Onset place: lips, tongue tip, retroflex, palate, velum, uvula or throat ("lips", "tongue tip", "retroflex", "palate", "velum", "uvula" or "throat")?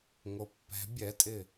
velum